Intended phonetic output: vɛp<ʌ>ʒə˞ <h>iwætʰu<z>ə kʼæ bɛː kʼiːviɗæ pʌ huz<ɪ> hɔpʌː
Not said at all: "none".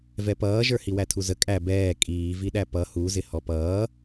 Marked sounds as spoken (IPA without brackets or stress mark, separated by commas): ʌː, h, z, ɪ